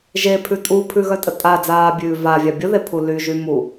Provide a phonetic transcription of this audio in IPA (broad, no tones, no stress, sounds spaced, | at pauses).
ʒ e pʰ ʉ tʼ u pʰ ʉ ɣ œ tʼ ə tʼ a d͡z aː bʲ ʉː v a vʲ a bʲ ə ð e pʰ u l y ʒ y m u